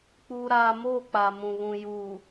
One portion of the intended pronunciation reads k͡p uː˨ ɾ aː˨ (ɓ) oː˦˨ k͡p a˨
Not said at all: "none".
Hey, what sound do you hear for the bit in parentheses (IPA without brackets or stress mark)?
m